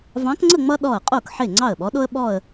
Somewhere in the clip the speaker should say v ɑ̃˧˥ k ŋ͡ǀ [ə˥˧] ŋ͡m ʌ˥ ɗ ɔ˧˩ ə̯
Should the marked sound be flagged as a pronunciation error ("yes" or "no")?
no